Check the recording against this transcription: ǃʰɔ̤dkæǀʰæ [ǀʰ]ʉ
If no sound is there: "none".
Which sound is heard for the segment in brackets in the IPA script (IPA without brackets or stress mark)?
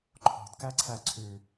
ǀʰ